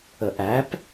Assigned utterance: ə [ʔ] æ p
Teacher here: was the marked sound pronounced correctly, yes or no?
yes